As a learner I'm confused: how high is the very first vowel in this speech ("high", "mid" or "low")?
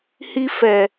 high